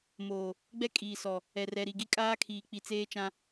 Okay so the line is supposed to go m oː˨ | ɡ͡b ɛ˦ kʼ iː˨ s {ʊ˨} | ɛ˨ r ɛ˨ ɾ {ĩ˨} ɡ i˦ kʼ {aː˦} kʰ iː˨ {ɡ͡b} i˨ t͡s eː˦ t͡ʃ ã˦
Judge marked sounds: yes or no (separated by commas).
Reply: no, no, yes, no